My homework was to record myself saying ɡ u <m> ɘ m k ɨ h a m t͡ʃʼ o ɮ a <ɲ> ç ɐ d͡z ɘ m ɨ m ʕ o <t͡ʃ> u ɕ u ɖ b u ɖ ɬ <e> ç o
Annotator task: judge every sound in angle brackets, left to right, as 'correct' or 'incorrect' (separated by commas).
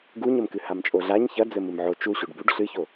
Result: incorrect, correct, correct, incorrect